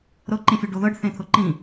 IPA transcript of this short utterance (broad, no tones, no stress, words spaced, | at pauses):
ɾɤ ǃĩfʲɵɖoðɤɖ θẽt̪ʰɤǃĩ